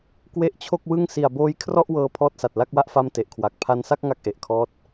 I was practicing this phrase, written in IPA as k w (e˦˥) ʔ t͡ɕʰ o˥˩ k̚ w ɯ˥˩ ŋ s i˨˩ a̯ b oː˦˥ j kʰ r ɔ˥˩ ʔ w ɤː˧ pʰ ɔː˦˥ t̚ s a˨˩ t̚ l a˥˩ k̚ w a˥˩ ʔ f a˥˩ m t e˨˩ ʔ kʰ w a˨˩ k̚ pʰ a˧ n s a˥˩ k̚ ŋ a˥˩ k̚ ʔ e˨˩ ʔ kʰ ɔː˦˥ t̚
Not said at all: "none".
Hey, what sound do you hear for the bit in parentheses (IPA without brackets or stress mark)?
e˦˥